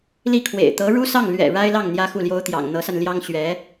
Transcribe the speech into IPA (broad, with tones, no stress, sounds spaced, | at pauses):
l i˥˩ kʰ w ḛ˨˩ ɪ̯ t̪ ɤ˧˥ ɻ u˥ s ɑ˥˩ ŋ l ɥ ɛ̰˨˩ ɻ a˥ ɪ̯ l ɑ˥˩ ŋ n̪ j ä˥ x u˥˩ l j o˥ ʊ̯ t̪ j ɑ̰˨˩ ŋ n̪ ɤ˧˥ s a˧ n l j ɑ˥ ŋ ɕ ɥ ɛ˧˥